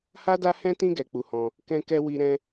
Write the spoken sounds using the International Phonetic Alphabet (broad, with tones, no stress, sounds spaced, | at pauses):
h a˦ d a˦ h ɛ̃˦ t ĩ˦ ɡ ɛ˧ k͡p u˧ h ɔ̃˧ | k ɛ̃˦ k ɛ˦ w i˦ ɾ ɛ̃˦